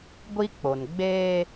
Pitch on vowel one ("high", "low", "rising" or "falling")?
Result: high